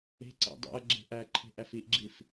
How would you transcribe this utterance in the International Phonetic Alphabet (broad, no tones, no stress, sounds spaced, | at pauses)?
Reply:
e̤ ǀ æ̰ dˤ æ̰ ɐ̯ ɡ͡ǁ e̤ ʔ æ ǃʰ e̤ ʔ æ f i ʔ ɡ͡ǁ i f